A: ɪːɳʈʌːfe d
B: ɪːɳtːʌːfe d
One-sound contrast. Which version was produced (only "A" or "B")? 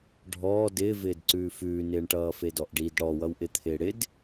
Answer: A